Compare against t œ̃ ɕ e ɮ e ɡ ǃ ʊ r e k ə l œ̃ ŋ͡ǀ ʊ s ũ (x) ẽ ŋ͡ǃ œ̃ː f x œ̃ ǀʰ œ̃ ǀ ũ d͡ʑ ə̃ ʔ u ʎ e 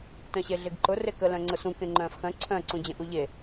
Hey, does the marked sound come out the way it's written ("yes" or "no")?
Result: no